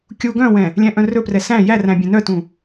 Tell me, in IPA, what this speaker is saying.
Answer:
kʲ u ɡ œ̃ w ɛ̃ | lʲ æ̃ ʔ œ̃ r ɵ p r ɛ s æ̃ j æ r æ̃ bʲ ɛ̃ n œ t ũ

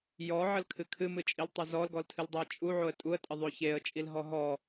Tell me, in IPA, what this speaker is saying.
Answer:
j ɔ ʕ ə l kʰ ɨ kʰ ɨ m ɨ t͡ʃʼ i l tˤ o z ɔ l ɡ ɔ l tʰ ɨ l dˤ o ə̯ t͡ʃʼ u ʕ o ə̯ tʼ u ə̯ tʼ ə ðˤ o ç e ə̯ t͡ʃʼ i l ɦ ɔ ɦ ɔ

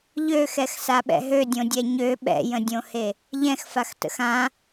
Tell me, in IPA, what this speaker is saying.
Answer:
ʎ ø x ɛ x s a ɓ ɛ̰ ɦ ø dʲ õ dʲ ɛ ɲ ø ɓ ɛ̰ j ə̃ dʲ õ h e | ʎ ɛ̃ x f a x t ə̰ x ã

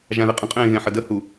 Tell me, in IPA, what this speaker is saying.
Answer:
ʒ ã ð e qʼ ə̃ qʼ ẽː ɣ ẽ ħ ə d ə h u

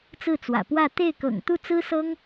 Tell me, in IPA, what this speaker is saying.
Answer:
t͡s ɹ̩˥˩ t͡s w ä̰˨˩ p w ä˥˧ t̪ e˥˩ ɪ̯ k ɤ̰˨˩ ŋ t̪ u˥˩ t͡s ɹ̩˥ s ɤ˥ ŋ

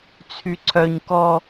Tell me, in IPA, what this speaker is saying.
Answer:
t͡sʰ y ǀʰ œ ɲ k ɔ

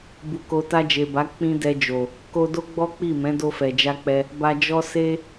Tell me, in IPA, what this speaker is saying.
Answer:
b u˨ k o˨ t a˧ d͡ʒ e˨ b a˨˦ k͡p ĩ˦ d ɛ˧ d͡ʒ o˨ | k o˧ d o˦ ɡ͡b ɔ˦ k͡p i˦˨ m ɛ̃˨˦ d o˧ f ɛ˨ d͡ʒ a˧ k͡p ɛ˧ | b a˧ d͡ʒ ɔ˦ s e˦

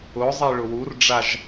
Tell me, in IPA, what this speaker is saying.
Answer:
ʊ zˤ i ɭ ʊ w u r ɖ͡ʐ a ʒ

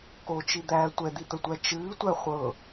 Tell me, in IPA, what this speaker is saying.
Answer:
k o t͡ʃ i d̪ æː tʷ ɛ d̪ i t̪ ə tʷ æ t͡ʃ ɨː tʷ æ χʷ ɤ

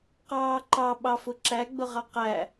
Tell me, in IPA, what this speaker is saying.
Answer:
q ɑː ǃ ɑ ɓ ɑ f ʊ ǁ æ ɡ͡b ʊ ʁ ɑ q æ

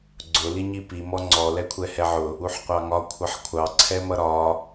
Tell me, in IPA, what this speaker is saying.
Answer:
ɡ͡ǀ ʊ l i ɲ i p i m ɔ ŋ͡ǀ ɔ l ɛ kʷʰ ɛ h ɛ ʕ ʊ | u ħ qʷ ɑ ŋ ɒ kʷʰ ʌ ħ kʷʰ ɑ ǀʰ ɛ m ʌ ɾ ɒ

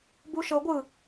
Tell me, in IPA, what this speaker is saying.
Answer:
b u ʃ ɤ ɡʷ ɯ

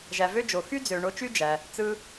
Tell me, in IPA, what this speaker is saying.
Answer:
ʒ æ˩ v ø˥ d͡ʒ o˩ x y˥ d͡z ø˩ ɳ o˧ t͡ʃ y˥ d͡ʒ æ˩ | t͡s ɯ˧

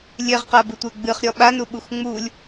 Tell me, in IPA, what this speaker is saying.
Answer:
lʲ e ʁ q a b ɨ tʷ ɘ ɡ͡b ɨ χ ɾʲ ɔ ɓ a n u ɓ u x ŋ͡m u lʲ

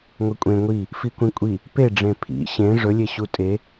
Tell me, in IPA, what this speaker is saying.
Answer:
ŋʷ e kʷʼ ẽ ŋʷ i | f i kʷ ĩ kʷʼ i | p e ɖ͡ʐ ẽ pʰ ḭ ɕ ẽ ʐ ɵ lʲ e ɕ u tʼ e

